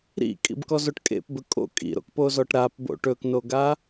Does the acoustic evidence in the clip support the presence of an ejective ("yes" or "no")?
yes